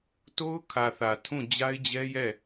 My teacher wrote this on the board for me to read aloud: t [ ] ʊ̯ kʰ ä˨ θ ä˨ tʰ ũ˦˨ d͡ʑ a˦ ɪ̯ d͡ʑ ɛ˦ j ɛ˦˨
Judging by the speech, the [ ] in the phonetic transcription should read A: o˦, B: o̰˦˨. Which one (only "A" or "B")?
A